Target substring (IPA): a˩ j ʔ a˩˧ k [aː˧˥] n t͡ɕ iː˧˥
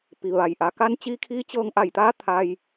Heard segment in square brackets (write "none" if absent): a˧˥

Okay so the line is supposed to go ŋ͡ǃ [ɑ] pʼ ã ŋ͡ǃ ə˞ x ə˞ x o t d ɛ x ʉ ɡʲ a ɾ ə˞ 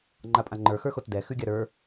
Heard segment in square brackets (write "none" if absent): a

